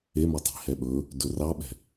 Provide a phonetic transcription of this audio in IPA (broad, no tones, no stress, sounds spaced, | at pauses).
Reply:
e m ɵ tˤ i̤ h ɛ ɓ ɵ | d ɵ r ɑ ɓ ɛ̤